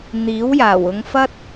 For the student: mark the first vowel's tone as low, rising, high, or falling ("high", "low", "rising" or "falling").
rising